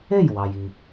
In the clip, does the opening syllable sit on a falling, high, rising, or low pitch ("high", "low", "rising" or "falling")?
falling